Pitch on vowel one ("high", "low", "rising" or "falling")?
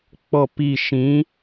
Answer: falling